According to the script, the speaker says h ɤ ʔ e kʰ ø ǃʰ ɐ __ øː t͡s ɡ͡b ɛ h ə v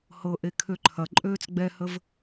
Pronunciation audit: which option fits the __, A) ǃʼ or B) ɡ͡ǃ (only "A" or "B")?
A